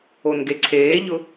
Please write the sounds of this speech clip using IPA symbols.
o n ɡ e ǀʰ eː ʎ ʊ

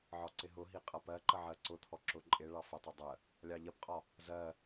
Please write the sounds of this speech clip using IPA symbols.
ʕ ɒ ǀ ɪ ɦ ʊ ɦ i qʼ ʌ p ɜ ǃ ə ʕ ɜ ǀ ʊ t̪ʰ ɔ ǁ ʊ ǃʼ ɪ ɭ ɑ f ə tˤ ʊ dˤ ə | lʲ ɑ ʎ ɜ p qʼ ɒ | z ɜ

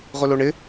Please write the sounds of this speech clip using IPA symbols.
ʁ ʊ l o ɳ ɪ

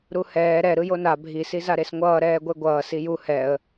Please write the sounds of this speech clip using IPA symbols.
ɾ u h ɛː ɾ ɛ ɾ ɯ j o n a bʱ i s i z a ɾ e s ŋʷ ʌː ɾ ɛː ɡʷ e ɡʷ ʌː s i j u h ɛ ə̯

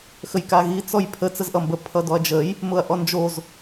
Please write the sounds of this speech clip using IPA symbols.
x ə j k a ɣ i t͡s ɔ j pʰ ə t͡s ə z ʔ ʌ m b ə pʰ ʌ d ɔ ɐ̯ d͡ʒ ə j | m ʊ ɐ̯ ʔ ɔ n d͡ʒ o z

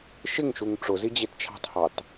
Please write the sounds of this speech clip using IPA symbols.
ʃ ɪ ŋ ʃ u ŋ ʈ͡ʂ ʊ z i d͡ʑ ɪ t t͡ʃʰ ɑ̤ t h ɑ t

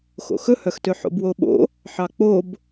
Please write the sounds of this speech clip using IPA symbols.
x o̰ x ɵ h œ x t ø ħ o̰ b w o ɓ o̰ | ħ ɑ k͡p o b

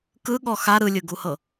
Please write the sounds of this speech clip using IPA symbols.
k ɯ ɠ ɔ x a ɾ ɯ lʲ ɯ ɡ u h ɤ

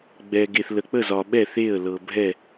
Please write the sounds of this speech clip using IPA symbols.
ɡ͡b ɛ˩ ɡ e˩ θ l ə˩ k͡p ə˥˩ z ɒ˩ ɓ ɛ˥˩ θ e˥˩ ə̯ l ɤ˩ bʱ ɛ˥˩

